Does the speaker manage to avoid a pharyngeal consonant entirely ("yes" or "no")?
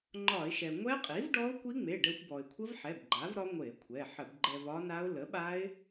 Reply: no